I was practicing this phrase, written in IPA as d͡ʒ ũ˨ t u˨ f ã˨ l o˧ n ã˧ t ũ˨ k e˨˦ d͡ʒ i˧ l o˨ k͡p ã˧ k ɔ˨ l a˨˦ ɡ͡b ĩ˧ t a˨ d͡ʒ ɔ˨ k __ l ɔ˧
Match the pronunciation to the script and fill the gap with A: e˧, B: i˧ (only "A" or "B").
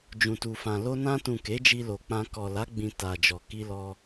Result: B